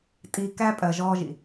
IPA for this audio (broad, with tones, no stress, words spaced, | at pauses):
tʼiː˨kæː˦ pʼɜ˨ʒɔː˦ʒḭ˨